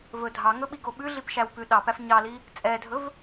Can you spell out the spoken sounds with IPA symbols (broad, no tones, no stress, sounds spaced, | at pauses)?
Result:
v ɵ dʱ ɑ ŋ ɵ ɓ i ɡ o ɓ ʉ ɮ i p ʃ æ w p ʉ ɗ ɑ p æ f ɲ ɑ l i | t͡sʼ ɛ dʱ ɵ v